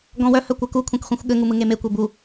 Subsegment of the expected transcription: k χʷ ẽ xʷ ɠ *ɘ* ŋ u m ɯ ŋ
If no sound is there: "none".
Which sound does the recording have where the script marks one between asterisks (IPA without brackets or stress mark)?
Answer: ɘ